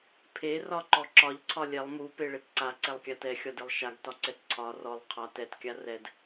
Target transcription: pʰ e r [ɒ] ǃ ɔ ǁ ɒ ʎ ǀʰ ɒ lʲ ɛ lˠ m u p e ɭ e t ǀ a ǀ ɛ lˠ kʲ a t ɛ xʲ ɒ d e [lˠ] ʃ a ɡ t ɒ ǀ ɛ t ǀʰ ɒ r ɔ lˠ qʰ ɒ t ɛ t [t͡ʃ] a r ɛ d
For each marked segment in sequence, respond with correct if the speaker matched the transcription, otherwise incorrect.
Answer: correct, correct, incorrect: kʲ

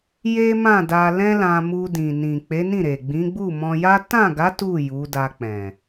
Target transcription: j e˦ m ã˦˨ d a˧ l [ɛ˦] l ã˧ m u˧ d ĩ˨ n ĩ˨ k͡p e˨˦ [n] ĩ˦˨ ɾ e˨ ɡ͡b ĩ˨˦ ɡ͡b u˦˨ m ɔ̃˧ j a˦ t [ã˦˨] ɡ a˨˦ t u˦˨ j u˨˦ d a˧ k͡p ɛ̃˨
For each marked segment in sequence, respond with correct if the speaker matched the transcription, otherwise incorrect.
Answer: incorrect: ɛ̃˦, correct, correct

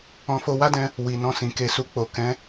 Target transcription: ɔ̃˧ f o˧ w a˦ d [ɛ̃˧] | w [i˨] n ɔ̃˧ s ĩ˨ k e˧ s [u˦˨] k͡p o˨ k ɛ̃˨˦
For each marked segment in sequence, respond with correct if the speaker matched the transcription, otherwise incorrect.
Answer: correct, correct, incorrect: u˧

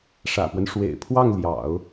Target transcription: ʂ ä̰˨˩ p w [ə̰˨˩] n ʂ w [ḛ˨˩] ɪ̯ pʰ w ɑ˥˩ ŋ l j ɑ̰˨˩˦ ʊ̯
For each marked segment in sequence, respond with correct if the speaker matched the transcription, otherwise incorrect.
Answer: incorrect: ə˦, correct

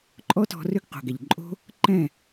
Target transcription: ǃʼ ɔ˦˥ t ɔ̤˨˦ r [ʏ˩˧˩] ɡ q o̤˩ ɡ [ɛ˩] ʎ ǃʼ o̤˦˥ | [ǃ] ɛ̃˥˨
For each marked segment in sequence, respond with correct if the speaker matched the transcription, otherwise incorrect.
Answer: incorrect: ʏ˦˥, correct, correct

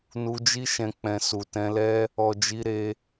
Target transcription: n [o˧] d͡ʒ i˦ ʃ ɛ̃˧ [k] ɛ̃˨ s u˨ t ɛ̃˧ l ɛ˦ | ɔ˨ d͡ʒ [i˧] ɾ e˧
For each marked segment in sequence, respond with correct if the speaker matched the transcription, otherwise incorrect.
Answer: incorrect: u˧, incorrect: k͡p, correct

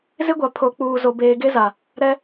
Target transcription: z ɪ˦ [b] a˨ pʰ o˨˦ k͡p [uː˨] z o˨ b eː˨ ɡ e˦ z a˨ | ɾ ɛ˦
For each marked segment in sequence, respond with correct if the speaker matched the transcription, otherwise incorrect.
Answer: incorrect: ɡʷ, correct

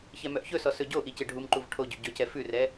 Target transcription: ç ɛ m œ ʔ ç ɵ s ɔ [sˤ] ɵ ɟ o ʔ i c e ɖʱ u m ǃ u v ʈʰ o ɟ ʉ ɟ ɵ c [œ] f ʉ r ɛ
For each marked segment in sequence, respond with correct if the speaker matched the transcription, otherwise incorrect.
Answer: incorrect: s, incorrect: ɛ

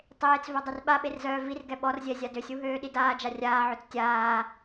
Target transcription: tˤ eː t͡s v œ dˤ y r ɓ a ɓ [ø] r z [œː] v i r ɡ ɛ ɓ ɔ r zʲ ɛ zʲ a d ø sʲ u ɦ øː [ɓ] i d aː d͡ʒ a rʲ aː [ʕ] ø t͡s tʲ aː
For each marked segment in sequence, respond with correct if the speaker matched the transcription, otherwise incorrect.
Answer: incorrect: e, correct, incorrect: ɗ, correct

